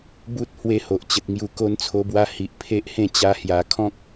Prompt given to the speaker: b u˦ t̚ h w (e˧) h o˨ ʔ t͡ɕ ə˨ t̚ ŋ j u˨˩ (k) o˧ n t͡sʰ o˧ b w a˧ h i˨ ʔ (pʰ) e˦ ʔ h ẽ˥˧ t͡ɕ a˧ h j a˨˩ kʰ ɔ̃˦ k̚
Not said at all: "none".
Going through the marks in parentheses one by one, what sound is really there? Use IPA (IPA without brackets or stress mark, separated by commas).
e˦, k, pʰ